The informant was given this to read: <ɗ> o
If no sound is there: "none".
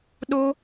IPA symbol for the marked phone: ɗ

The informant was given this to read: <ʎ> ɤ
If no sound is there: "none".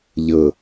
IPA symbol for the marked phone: ʎ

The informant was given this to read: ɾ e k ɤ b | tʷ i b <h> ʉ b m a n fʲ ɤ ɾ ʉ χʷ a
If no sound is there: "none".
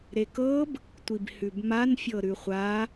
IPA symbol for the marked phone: h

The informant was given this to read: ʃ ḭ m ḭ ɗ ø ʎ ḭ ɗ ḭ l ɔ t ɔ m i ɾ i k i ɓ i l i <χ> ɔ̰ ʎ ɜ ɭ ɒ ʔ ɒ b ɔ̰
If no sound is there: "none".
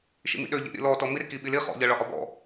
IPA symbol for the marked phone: χ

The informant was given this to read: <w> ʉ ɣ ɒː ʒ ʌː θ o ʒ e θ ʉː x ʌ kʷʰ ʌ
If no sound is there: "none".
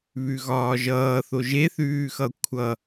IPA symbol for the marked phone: β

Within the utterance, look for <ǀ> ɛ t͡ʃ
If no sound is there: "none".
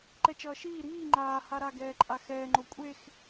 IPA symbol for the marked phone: ǃ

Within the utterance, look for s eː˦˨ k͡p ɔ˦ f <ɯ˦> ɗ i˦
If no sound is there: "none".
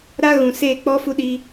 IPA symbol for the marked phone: u˦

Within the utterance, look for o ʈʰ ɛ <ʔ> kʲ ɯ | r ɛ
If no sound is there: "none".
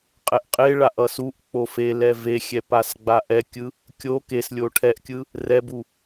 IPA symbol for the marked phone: ʔ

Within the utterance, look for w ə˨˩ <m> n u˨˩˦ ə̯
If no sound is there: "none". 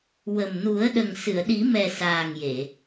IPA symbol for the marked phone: m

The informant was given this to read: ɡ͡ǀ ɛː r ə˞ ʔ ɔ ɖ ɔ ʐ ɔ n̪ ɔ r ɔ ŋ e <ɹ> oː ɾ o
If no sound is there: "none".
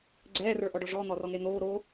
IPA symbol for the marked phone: n̪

